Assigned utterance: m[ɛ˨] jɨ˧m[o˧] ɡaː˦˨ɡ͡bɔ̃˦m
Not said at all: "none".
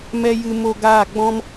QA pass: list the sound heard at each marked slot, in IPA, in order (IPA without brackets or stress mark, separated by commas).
ɛ˧, o˧